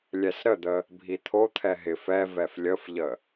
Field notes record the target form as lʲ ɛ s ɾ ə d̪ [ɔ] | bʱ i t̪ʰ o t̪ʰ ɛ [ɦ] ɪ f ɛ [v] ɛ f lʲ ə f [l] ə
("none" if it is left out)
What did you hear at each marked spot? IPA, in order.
ə, ɦ, v, ʎ

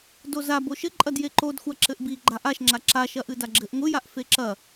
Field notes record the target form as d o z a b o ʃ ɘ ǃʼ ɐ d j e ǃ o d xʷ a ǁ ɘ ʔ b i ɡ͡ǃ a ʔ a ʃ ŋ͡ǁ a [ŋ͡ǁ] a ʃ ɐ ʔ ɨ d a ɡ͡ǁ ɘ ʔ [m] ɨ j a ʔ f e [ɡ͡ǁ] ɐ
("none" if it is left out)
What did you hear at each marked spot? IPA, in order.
ǁ, ŋʷ, ǁ

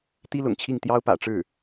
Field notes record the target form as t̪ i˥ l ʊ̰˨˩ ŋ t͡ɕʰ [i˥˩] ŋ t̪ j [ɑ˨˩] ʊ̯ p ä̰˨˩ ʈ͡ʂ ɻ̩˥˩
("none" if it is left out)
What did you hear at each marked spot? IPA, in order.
i˥˩, ɑ˥

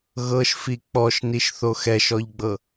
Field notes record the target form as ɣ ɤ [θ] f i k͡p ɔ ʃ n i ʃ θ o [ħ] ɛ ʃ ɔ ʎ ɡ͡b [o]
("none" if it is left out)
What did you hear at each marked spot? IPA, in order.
ʃ, x, ɤ

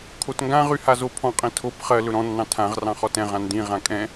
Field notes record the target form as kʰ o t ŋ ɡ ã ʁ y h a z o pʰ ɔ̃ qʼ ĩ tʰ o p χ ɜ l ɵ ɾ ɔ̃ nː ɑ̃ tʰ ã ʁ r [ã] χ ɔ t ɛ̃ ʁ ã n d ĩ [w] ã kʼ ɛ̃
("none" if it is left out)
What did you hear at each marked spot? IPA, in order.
ɑ̃, ʁ

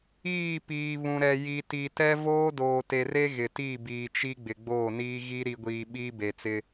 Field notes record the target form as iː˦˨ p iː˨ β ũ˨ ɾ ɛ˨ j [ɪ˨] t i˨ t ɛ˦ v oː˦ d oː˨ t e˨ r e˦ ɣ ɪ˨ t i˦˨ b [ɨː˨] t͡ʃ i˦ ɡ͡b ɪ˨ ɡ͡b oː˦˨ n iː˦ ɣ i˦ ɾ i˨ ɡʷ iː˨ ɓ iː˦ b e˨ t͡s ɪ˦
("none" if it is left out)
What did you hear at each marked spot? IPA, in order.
i˨, iː˨

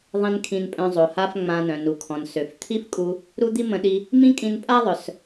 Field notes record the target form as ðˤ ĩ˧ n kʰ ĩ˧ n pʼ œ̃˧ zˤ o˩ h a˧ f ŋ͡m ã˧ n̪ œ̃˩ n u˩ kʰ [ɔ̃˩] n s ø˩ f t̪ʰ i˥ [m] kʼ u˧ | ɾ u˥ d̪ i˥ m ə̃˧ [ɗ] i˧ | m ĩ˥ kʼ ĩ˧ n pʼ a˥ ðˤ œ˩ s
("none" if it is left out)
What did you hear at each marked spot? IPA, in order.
ɔ̃˩, f, ɗ

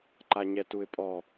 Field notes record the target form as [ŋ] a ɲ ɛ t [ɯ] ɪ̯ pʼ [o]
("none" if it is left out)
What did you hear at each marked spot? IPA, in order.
ǃ, u, ɔ

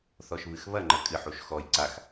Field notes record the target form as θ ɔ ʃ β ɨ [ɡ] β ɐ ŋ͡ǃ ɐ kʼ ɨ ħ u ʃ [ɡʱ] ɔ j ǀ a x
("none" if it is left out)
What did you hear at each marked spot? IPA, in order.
x, x

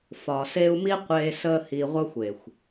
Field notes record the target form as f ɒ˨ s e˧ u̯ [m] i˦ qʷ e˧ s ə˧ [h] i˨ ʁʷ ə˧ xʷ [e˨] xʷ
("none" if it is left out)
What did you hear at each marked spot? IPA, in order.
m, h, e˨

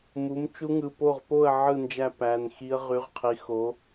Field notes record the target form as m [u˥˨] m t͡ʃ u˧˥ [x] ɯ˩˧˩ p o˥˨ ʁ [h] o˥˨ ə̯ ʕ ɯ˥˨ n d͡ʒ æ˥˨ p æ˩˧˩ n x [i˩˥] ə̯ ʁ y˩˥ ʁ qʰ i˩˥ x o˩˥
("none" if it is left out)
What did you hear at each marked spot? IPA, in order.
u˩˥, ŋ, p, i˧˥

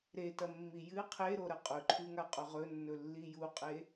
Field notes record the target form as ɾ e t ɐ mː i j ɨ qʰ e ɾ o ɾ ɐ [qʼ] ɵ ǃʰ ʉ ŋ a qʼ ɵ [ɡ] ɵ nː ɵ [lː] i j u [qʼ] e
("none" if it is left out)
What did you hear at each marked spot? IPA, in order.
qʼ, ʁ, lː, qʼ

